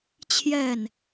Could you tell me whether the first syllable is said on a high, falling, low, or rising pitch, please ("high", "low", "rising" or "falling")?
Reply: falling